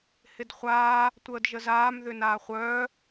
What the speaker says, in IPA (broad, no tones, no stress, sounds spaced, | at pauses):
h ɪ d χʷ aː | tʷ əː d ʒ ə z aː m ð ʏ n aː χʷ œː